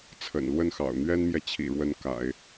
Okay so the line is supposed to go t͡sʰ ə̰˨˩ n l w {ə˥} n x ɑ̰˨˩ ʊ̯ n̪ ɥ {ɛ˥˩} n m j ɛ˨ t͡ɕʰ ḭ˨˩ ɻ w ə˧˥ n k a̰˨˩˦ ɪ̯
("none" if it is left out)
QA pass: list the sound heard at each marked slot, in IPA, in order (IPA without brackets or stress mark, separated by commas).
ə˥˩, ɛ˥